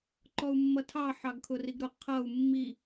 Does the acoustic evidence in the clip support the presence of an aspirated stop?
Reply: yes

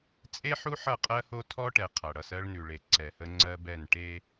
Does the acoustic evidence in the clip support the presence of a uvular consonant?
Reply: yes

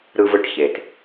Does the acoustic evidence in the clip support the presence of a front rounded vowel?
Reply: no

